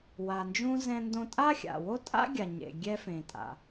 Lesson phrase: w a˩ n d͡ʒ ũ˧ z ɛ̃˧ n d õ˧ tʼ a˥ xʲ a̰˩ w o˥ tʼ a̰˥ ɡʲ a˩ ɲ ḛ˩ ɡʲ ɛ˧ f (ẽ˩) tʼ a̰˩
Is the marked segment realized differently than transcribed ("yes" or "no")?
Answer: no